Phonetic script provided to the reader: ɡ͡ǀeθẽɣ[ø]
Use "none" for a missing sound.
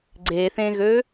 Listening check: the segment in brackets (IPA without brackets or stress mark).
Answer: ø